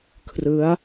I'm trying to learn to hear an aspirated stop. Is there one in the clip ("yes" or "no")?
yes